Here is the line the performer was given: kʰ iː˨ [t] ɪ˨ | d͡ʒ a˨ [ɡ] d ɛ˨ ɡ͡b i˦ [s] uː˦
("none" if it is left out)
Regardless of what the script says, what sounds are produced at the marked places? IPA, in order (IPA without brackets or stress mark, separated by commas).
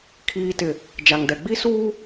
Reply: t, ŋ, s